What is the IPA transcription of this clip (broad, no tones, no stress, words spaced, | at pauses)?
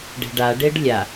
ɖe̤ɖaɖeɖ lʲa